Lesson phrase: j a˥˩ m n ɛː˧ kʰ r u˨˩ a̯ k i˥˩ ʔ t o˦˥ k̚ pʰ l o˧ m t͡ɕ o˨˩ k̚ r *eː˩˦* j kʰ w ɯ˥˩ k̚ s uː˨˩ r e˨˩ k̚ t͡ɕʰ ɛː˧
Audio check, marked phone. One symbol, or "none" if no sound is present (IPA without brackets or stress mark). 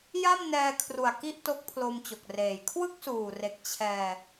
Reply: eː˨˩